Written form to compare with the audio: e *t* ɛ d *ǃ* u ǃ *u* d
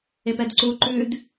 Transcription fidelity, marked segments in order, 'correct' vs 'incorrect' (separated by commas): incorrect, incorrect, incorrect